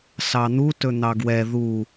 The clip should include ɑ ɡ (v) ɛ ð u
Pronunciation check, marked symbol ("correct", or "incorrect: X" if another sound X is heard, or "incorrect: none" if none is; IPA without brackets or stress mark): incorrect: w